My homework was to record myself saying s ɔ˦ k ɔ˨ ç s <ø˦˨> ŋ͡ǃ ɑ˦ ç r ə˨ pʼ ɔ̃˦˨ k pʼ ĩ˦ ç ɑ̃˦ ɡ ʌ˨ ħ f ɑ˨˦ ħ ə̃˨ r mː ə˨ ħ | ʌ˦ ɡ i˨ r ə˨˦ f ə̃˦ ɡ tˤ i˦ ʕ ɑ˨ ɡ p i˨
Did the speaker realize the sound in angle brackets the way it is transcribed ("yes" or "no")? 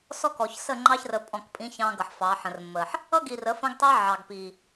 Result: no